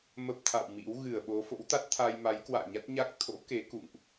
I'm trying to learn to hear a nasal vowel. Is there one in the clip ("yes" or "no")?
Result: no